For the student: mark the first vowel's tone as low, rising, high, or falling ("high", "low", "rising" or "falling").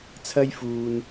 high